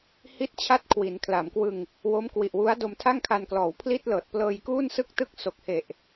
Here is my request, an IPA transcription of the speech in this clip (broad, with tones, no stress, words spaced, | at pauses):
hi˥˩t̚t͡ɕʰa˥˩t̚ kʰwi˩˦nkʰla˩˦mkwɯ˧ŋ | wo˦˥mkwi˨˩ʔwu˦˥a̯ do˧mtʰa˥˩ŋkʰa˧n klɔː˩˦wpʰli˥˩t̚lɤː˨˩t̚ plɤː˧jkuː˥˩nsɯ˥˩k̚tɯ˥˩k̚ so˨˩k̚he˨˩ʔ